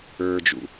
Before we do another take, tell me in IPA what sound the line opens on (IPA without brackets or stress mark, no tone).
ə˞